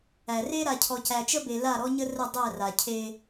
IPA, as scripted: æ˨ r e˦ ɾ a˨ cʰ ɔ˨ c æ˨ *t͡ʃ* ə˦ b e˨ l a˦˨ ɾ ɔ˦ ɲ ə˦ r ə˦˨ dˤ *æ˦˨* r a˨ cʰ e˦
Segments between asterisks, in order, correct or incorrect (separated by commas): correct, correct